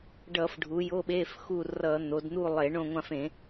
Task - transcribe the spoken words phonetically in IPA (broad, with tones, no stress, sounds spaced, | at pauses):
ɖ ʌ˧˩˧ f ɖʱ u˩˧ j o˧˥˧ ɓ e˧˥˧ f x u˦˨ r ʌ˧˩˧ n̪ o˩˧ d n̪ u˦˨ lˠ e˧˩˧ ɳ õ˦˨ ŋʷ ã˦˨ f ẽ˧˩˧